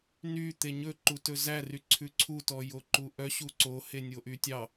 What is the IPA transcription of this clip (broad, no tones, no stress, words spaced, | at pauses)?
nyt̪e ɲɵǃutɵ zæryǀʰʉ ǀʰutɔjoǃu ʔœɕu ǀohenʲoʔy tʲɑ